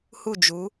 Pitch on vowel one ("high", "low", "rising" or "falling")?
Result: falling